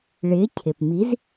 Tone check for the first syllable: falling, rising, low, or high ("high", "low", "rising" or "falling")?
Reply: rising